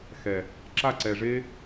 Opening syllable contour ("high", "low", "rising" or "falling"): low